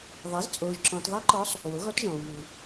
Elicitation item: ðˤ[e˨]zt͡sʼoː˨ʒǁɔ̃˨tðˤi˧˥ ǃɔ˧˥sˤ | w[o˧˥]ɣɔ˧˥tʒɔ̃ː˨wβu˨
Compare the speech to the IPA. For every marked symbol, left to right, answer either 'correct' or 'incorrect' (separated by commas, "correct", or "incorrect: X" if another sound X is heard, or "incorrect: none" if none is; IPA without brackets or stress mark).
incorrect: e˩˥, incorrect: o˩˥